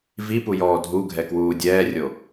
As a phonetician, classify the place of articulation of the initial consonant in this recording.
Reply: labial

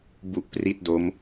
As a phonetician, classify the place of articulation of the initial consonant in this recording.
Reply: labial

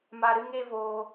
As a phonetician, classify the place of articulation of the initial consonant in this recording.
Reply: labial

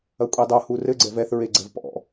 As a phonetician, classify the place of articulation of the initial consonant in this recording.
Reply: velar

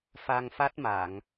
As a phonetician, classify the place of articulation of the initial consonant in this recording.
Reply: labial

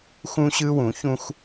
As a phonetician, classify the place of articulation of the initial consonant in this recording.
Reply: velar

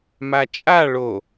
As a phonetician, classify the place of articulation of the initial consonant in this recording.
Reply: labial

